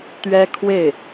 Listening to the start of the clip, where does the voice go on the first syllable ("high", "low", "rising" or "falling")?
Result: high